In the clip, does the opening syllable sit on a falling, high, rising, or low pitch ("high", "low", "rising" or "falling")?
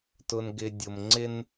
low